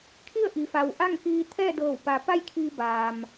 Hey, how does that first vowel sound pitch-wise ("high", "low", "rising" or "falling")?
falling